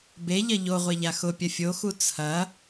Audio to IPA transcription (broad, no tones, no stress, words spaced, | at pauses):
beʎɐ ʎoʁʷeʎa xʊpʲɐ fʲoxu t͡sʰɐ